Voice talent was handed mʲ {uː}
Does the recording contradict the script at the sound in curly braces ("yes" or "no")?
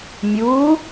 no